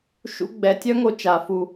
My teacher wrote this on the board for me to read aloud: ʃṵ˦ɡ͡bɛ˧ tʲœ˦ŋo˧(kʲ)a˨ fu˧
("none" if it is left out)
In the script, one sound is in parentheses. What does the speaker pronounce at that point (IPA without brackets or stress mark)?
t͡ʃ